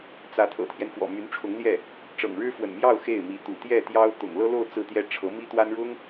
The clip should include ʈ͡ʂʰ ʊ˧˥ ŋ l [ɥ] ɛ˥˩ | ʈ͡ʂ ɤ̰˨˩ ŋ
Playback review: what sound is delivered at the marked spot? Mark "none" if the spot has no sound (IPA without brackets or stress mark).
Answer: j